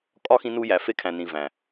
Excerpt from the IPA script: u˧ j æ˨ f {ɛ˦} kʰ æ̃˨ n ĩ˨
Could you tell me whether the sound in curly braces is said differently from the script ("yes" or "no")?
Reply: yes